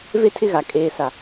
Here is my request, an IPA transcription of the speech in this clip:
v e˦ tʰ ɪ˦ ɣ a˨ kʼ eː˨ s a˨

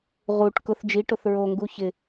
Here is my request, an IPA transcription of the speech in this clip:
ʁ u ʈ k ʊ θ d͡ʒ i ʈ ʊ θ ɹ o ŋ ɡ u ç ɪ

